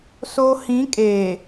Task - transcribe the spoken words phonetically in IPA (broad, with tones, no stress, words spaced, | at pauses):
so˦ hĩ˨˦ kʼeː˨